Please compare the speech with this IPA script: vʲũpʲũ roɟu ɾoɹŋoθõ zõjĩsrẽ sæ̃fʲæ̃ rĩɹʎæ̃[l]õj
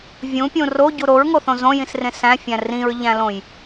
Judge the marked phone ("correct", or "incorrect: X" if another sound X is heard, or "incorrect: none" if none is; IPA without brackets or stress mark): correct